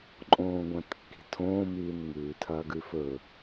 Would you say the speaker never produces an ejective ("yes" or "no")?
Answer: no